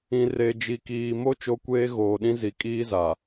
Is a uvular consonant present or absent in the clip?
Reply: absent